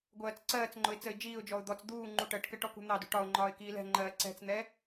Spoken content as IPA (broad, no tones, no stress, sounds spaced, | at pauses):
ɡʷ ɜː t͡s ǀ ɜː t͡s ŋ͡ǃ ʊ ɪ̯ t͡s ə ɪ̯ d͡ʒ iː ʊ̯ d͡ʒ ɔ ʊ̯ d̪ ɔ t͡s d̪ uː ŋ͡ǃ u ʈ ɜ ʈ k ɜ ʈ ɔ k ṳ n̪ ɑ d ṳ ʈ ɒ ʊ̯ ŋ͡ǃ ɒː ɪ̯ k iː l ɛ̤ ŋ͡ǃ ɜː ǀ ɛ̤ t͡s n̪ ɛ